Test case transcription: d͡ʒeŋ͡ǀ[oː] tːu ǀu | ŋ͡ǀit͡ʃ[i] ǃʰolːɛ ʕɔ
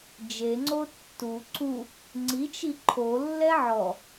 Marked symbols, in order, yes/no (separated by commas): no, yes